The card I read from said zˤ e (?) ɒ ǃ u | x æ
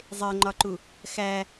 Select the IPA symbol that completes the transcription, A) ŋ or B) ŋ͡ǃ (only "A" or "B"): B